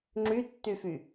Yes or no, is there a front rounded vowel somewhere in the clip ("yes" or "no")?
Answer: yes